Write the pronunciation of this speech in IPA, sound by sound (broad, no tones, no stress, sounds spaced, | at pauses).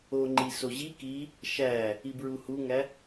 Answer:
o ŋ͡ǃ i s o ʑ i k i | ʃ æ | i b ɹ u h u ŋ æ